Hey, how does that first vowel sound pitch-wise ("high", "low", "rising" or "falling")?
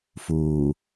low